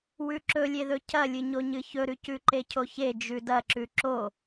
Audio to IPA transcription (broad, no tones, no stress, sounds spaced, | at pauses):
w ʉ ǁ ɵ lʲ e ð ɵ cʰ ɐ lʲ ɨ ɲ o ɲ ɨ ç ɵ ɾ ʉ c ʉ ǃ e cʰ o ç e d͡ʒ ʉ d ɐ ǁ ʉ ǁ o